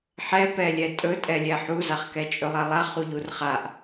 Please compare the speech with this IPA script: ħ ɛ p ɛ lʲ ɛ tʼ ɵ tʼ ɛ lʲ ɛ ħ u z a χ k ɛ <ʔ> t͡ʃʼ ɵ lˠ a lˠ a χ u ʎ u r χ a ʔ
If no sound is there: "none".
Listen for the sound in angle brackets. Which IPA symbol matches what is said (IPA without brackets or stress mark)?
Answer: none